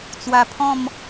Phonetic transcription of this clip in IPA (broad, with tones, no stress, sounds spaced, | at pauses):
t͡s w a˧ pʰ ɔ̃˥˧ m